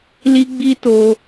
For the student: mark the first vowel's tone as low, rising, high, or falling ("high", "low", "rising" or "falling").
high